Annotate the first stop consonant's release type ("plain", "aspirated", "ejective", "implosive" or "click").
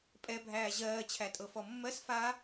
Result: ejective